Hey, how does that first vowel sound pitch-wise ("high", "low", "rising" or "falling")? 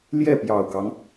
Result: falling